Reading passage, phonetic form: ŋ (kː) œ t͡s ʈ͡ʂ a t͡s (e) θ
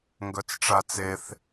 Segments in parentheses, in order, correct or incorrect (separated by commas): incorrect, correct